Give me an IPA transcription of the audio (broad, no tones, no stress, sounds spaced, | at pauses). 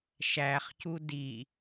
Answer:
ʃ æ χ c u d i